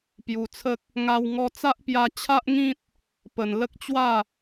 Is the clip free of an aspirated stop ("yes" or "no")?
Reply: no